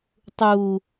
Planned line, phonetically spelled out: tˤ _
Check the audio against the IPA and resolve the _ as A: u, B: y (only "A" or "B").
A